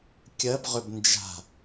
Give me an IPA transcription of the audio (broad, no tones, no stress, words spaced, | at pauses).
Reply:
kʲɜb ʁʏbnd͡ʒa̤